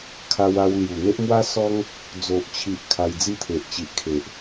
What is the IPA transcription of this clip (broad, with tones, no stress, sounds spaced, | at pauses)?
kʰ a˧ w a˧ w l j u˨˩ n̪ e˦ ʔ m w a˦ s ɔ˦ ŋ | d͡z o˨ ʔ t͡ɕʰ i˨ ʔ kʰ a˧ j d͡z i˥˧ t̪ʰ e˨ ʔ t͡ɕ i˨ ʔ kʰ e˨ ʔ